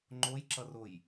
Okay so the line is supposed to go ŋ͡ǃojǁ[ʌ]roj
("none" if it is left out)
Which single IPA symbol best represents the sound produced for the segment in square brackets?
ʌ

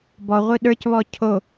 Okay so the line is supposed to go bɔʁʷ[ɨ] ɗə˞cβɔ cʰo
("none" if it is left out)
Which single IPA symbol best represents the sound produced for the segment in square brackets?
ɨ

